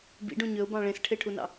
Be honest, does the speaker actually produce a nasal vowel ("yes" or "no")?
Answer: yes